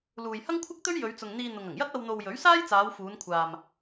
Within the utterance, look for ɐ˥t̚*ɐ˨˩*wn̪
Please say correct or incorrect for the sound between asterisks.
incorrect